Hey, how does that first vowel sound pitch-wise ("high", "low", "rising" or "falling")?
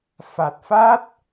low